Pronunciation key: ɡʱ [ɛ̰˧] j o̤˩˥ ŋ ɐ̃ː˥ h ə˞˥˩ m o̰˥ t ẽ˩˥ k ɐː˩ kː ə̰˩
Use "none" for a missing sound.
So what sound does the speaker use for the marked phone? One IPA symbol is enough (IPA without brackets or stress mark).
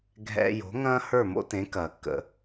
ɛ̰˧